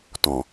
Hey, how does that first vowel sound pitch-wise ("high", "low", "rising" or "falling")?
low